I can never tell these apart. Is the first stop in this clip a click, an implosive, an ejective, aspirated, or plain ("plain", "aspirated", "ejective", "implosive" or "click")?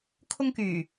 aspirated